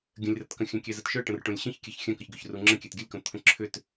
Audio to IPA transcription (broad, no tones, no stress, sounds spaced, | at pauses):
ɡʲ ə̃ lʲ r ə t k ə̃ xʲ œ̃ kʲ ɛ z ə t ʃ œ ʈ ə̃ r ʈ õ lʲ ɕ ə̃ ç kʲ ɛ ç xʲ œ̃ k ə ç ɡ ʏ ç r u ŋ͡ǁ ə̃ kʲ ɛ t ɡʲ ə lʲ k õ t̪ʰ ə̃ ǁʰ ʏ t